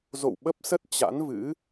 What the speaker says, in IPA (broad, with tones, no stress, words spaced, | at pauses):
zo̰˧˨w ɓə˦˥p̚sə˦˥t̚ t͡ɕa̰˧˥nvɨ̰˧˥